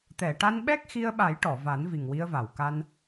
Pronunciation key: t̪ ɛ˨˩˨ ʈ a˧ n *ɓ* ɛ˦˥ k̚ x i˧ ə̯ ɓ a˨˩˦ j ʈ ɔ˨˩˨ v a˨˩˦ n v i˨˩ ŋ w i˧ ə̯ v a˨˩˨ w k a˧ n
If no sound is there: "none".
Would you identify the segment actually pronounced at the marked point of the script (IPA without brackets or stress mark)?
ɓ